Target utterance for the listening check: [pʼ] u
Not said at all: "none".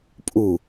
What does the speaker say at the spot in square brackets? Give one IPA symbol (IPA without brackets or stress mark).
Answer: pʼ